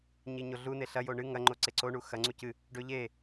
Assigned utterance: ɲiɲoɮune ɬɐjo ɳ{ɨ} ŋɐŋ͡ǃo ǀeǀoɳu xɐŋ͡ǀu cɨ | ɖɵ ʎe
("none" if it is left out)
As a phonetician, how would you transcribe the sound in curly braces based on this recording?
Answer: ɨ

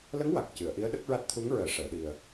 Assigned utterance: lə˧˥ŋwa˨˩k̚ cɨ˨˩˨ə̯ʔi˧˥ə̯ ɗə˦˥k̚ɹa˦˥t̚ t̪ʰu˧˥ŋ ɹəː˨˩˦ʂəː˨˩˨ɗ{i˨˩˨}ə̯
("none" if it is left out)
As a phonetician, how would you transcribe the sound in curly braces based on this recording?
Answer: i˨˩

